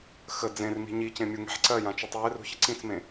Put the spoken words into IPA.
x ə d͡z ẽ r m i̤ ɲ i c ẽ mʲ u ŋ e̤ ħ ǀ ɜ j ã t͡ʃ u tˤ j e r ṳ ç ə ǀ ĩ t͡s m ẽ

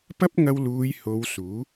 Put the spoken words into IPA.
p ɐ˥ p̚ ŋ ɐ˧ w l uː˨˧ j h o˨˧ w s uː˨˥

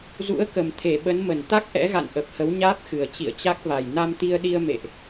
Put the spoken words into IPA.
z ṵ˧˥ ə̯ k ə˨˩ m t̪ʰ e˧˩ ɓ ə˨˦ n m ə˧˩ n t̪ a˦˥ k̚ ʔ ɛ̰˧˥ ɣ a̰˧˨ n ʔ ə˨˩ p̚ h ə˨˦ w ɲ aː˦˥ p̚ x ɨ˨˩ ə̯ t͡ɕ ḭ˧˨ ə̯ t͡ɕ a˦˥ k̚ v a˨˩ j n a˧ m t̪ i˧ ə̯ ɗ i˧ ə̯ m ḛ˧˨ ʔ

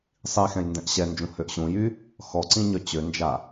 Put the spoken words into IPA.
sˤ i x ɛ̃ j n d ɛ̃ ʔ ɕ ɛ n d͡ʒ ũ h ø ʔ ɕ ũ j y | x ɔ ǀ ĩ ɲ œ t͡ɕ ø n d͡ʒ a

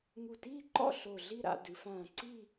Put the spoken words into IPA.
ŋ u˧˩ t iː˥˧ ǃ ɔ̰˥˧ ɬ o˧˩ ɮ i˥˧ ɾ a̰˧ d ɨ˩˧ f ãː˧˩ ǀ i˥˧

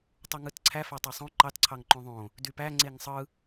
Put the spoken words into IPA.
tˤ u ŋ ɯ t ǀʰ æ f æ tˤ ɑ sˤ õ ǃ ɑ t ǀʰ ɑ ŋ ǃ õ ðˤ õ | d y p æ ŋ͡ǀ e ŋ sˤ ɯ

